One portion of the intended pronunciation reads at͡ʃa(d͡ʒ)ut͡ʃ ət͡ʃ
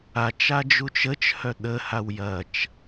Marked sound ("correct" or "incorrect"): correct